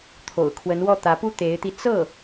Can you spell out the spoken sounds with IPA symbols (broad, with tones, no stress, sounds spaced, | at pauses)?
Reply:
t̪ʰ o̰˨˩ ʊ̯ kʰ w ə˧˥ n w ɔ˥˩ t̪ ä˧˥ p u˥ t̪ e˧˥ ɪ̯ t̪ i˧ t͡s ɤ˥˩